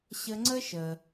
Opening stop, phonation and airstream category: click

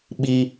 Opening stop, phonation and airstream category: implosive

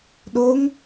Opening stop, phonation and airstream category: implosive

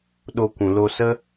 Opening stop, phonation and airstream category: implosive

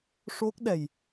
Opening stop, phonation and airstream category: plain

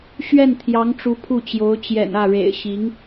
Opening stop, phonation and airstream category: aspirated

